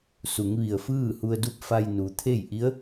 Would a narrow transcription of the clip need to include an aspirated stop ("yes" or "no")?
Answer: yes